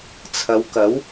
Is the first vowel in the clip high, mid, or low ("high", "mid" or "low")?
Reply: low